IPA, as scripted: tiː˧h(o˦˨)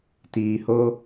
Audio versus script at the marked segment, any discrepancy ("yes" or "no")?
yes